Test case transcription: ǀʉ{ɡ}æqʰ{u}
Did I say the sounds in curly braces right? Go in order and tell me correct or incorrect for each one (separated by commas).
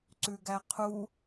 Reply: correct, correct